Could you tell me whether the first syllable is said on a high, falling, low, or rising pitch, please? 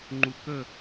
low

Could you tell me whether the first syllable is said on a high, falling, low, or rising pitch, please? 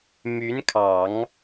rising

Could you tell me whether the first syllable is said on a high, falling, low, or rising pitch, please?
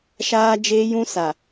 high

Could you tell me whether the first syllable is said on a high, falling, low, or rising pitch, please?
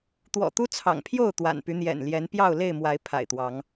low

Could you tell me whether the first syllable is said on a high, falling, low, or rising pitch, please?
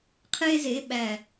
high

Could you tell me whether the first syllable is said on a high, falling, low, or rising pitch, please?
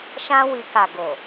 high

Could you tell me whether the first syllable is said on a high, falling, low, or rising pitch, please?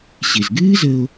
low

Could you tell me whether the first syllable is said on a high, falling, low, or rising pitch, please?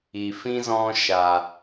low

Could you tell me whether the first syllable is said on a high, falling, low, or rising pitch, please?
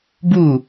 falling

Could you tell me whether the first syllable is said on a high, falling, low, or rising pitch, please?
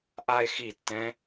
falling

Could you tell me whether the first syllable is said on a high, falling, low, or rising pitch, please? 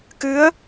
rising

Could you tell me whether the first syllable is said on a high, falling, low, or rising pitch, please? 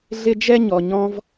high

